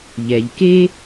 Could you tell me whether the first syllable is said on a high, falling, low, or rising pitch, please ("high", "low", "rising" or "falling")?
low